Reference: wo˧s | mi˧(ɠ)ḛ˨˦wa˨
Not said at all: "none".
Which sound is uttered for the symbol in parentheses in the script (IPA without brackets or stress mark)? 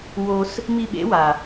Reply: ɓ